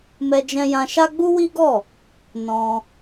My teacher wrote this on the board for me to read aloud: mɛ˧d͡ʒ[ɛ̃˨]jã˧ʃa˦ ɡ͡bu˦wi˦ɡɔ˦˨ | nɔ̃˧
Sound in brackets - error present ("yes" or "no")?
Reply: yes